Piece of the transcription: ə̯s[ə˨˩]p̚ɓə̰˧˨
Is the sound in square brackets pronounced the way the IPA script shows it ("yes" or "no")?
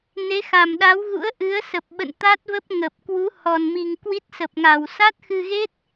yes